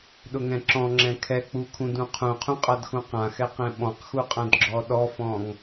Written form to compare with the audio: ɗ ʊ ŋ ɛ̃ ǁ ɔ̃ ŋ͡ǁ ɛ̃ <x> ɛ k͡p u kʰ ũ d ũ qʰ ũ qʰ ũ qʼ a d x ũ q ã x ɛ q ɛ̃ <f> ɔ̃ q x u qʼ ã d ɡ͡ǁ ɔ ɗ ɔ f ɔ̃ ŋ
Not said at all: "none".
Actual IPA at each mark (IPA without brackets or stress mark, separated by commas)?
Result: kʰ, ɓ